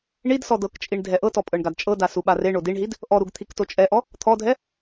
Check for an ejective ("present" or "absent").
present